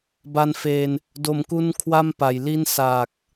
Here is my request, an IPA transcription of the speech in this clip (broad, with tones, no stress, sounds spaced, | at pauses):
b a˧ n f eː˧ n | d o˨˩ m k u˧ n kʰ w a˥˩ m p a˨˩ j l i˥˩ n s aː˨˩ k̚